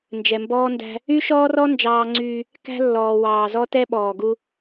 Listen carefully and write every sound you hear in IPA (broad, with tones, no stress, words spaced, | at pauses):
nd͡ʒɛ˨mbɔː˦ ndæ̤˦ | y˦ʃɔː˦rɔ˦ nd͡ʒɑː˦ŋ͡ǀyː˦ | kæ̤˦lːɔː˨ wɑː˨ zɔ˦ tɛ˦ɓɔː˨ɡu˦